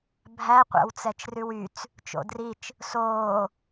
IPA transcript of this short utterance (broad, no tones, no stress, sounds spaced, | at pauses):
bʱ æ qʷ æ̰ w t͡s ɛ t͡ʃ r ʉ w y t͡s | t͡ʃ o̰ d r i t͡ʃ | s oː